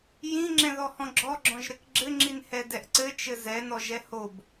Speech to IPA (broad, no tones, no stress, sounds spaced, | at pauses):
j ĩ ŋ͡ǁ ɛ̃ ð ɔ h ɔ̃ ɡ͡ǁ ɔ ɡ͡ǁ ɔ̃ ʒ ɾ ɘ k ɡ͡ǁ ɘ ŋ͡ǁ i n h ɛ d ɛ ʔ ǀ ɘ t͡ʃ ɘ z ɛ n ɔ ʒ ɛ h o b